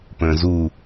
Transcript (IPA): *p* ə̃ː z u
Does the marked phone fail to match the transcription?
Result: no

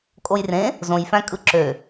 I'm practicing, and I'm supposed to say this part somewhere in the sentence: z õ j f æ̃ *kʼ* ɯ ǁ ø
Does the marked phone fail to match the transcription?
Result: no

